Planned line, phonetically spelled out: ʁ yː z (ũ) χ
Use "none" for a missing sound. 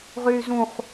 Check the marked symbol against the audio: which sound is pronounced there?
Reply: ũ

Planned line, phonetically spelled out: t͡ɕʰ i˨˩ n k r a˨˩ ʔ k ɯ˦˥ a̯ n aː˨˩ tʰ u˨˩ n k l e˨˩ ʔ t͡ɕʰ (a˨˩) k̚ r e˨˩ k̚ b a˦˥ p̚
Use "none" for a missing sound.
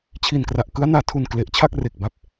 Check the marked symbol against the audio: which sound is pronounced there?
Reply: a˥˩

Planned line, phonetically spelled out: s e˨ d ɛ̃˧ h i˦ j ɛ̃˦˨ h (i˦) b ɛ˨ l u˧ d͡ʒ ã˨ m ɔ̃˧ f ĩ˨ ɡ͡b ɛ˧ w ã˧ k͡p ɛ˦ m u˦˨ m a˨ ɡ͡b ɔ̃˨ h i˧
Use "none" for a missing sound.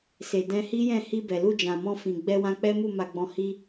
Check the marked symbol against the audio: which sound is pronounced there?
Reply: i˧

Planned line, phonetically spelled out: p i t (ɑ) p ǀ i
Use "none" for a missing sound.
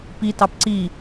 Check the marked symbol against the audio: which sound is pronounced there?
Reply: ɑ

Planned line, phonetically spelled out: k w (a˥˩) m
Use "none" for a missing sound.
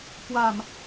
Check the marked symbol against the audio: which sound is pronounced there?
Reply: a˨˩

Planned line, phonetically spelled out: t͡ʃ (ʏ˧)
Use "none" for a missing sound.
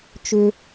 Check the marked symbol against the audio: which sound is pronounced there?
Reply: ʏ˧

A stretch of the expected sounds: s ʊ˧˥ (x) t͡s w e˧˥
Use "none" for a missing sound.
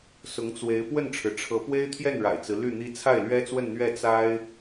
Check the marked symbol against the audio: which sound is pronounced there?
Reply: ŋ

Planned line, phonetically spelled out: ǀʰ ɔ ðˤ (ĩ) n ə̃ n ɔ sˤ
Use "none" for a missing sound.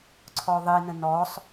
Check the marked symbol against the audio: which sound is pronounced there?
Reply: i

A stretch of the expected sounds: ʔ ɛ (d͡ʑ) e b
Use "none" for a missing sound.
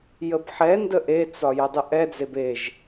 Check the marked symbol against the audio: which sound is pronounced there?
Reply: d͡z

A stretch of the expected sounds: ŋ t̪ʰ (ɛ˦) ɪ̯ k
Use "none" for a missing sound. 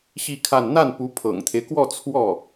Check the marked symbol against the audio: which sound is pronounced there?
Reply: e˦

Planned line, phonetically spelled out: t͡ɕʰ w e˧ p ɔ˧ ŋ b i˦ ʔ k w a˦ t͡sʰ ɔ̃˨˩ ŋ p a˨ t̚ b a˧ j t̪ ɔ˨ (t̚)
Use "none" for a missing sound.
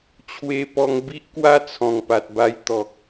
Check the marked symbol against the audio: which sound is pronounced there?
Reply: k̚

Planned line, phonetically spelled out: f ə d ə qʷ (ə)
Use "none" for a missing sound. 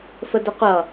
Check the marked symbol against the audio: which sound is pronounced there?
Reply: ʌ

